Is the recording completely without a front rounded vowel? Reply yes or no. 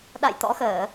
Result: yes